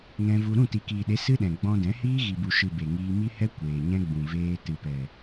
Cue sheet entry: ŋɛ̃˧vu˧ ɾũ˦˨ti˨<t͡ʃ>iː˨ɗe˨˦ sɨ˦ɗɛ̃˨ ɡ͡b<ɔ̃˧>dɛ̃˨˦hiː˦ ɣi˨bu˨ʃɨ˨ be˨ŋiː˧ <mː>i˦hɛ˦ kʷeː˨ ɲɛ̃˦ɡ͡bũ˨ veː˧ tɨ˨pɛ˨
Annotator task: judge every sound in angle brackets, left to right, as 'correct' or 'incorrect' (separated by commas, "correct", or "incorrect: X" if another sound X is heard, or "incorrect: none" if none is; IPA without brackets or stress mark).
incorrect: k, correct, incorrect: m